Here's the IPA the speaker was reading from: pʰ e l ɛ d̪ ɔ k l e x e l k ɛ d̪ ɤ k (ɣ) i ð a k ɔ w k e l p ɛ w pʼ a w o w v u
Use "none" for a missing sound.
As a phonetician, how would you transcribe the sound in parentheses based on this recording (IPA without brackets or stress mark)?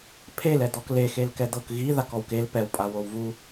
ɣ